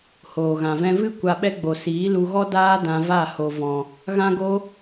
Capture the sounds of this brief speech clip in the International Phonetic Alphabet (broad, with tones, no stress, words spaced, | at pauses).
hoː˨ɣã˨vɛ̃˦ vɨ˦ kʷa˧ɓɛ˦ ɡ͡bo˨siː˨˦lu˧ɣɔ˦ daː˦ dã˧va˦˨ ho˨vɔ̃˨ | ɣã˦ɡo˦